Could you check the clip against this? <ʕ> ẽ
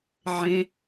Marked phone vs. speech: correct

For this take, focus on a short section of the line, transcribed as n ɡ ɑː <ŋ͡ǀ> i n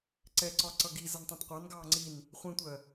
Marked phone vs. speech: correct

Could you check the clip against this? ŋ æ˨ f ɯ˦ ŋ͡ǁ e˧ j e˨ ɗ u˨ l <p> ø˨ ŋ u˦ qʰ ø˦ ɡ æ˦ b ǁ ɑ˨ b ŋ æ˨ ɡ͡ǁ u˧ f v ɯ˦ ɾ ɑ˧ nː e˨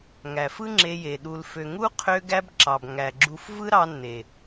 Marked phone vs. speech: incorrect: f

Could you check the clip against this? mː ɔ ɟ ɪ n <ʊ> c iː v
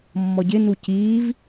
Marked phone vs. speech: incorrect: u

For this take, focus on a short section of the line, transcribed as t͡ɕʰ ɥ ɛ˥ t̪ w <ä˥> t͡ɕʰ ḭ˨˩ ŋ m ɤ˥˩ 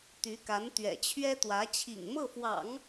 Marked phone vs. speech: incorrect: ä˧˥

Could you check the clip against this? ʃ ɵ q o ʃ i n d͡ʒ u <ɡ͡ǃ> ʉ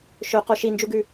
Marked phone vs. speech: incorrect: ɡ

